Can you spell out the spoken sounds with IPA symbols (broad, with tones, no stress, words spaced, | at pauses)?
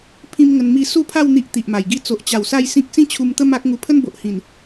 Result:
pʰĩ˦mŋə˧n mi˧ su˦pʰa˥˧w n̪i˦ʔt̪i˨ʔma˨˩jɡi˥˧ t͡so˨ʔt͡ɕa˨˩w sa˥˧jsĩ˦k̚ sĩ˥˧t͡ɕʰu˧mt̪ə˦ ma˦k̚ ŋu˧pʰə˦nbo˨ʔ hĩ˨˩n